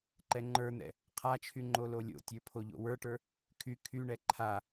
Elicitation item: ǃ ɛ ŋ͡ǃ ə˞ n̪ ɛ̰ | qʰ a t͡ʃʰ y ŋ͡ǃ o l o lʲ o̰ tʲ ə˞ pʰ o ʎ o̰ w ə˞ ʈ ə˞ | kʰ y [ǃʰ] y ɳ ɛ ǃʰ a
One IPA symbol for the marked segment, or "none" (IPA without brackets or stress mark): kʰ